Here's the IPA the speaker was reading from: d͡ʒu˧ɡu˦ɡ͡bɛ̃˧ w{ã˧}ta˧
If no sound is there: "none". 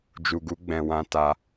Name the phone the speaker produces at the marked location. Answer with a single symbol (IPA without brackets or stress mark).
ã˧